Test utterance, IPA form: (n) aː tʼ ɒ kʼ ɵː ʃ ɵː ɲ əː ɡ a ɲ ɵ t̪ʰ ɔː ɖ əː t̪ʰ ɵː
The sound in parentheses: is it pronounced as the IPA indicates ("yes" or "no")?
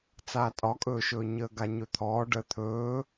no